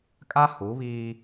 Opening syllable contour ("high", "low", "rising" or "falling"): high